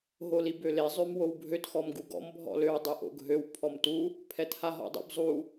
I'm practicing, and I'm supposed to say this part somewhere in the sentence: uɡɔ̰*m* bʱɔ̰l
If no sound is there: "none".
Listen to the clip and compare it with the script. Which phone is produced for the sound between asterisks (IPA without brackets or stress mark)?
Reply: m